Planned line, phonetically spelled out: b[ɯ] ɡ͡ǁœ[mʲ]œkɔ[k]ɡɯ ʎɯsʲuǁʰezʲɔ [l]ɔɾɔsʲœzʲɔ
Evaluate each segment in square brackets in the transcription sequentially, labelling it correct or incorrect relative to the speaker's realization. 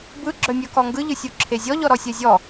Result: correct, correct, incorrect: ŋ, incorrect: ʎ

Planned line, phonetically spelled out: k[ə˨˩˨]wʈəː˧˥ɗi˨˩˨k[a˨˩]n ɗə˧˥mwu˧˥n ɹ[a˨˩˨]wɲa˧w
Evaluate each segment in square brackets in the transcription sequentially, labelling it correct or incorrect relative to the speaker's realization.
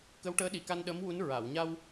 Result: incorrect: ə˧˥, incorrect: a˧, correct

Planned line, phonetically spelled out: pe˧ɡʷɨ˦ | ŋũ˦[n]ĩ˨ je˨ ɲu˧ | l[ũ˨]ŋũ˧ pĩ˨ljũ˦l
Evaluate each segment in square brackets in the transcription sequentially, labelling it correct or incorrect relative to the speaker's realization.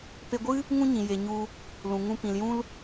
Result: incorrect: ɲ, correct

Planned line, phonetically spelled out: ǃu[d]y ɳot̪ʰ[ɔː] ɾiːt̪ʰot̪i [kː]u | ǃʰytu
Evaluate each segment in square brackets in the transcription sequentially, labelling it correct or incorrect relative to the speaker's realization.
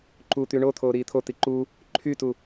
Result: incorrect: t̪, incorrect: oː, incorrect: ǃ

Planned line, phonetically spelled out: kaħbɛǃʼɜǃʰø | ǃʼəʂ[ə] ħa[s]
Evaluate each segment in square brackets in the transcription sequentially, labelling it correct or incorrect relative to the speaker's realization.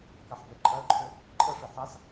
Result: correct, correct

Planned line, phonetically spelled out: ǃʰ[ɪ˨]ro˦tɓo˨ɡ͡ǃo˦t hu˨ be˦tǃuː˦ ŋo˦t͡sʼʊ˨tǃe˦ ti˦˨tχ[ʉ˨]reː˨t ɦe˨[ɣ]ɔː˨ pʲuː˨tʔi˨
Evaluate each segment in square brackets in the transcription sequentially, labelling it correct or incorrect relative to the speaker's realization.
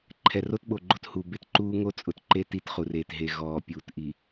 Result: incorrect: ɛ˨, incorrect: u˨, correct

